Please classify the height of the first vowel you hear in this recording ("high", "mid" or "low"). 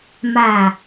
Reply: low